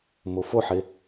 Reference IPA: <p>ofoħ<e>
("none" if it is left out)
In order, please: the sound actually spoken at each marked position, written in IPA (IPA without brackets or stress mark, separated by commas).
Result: m, e